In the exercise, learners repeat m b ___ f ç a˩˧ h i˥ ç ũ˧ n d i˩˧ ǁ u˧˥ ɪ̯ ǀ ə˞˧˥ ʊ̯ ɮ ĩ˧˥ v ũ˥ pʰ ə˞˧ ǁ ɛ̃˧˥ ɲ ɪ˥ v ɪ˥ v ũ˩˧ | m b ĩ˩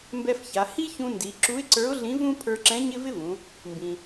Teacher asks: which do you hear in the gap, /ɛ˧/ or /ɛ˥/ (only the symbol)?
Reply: ɛ˧